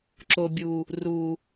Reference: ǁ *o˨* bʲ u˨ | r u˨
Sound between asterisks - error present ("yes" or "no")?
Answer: no